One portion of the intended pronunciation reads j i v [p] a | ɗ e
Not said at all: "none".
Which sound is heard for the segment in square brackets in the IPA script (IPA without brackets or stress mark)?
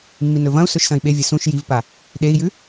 p